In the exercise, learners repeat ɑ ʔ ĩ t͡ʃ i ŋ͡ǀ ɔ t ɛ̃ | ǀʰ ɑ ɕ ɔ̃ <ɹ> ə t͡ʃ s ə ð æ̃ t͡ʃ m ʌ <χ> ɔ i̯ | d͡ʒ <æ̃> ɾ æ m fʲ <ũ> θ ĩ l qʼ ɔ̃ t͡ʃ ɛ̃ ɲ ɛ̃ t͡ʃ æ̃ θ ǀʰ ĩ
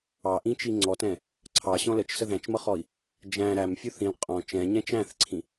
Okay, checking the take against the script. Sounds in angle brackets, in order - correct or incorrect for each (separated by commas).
incorrect, correct, correct, incorrect